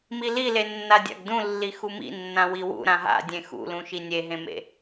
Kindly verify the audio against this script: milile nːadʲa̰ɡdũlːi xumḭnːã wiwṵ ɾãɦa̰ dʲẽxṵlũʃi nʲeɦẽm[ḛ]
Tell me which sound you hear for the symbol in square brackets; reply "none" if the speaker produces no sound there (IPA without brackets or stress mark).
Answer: ḛ